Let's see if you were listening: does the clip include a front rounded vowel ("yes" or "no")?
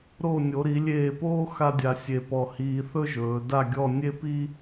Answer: no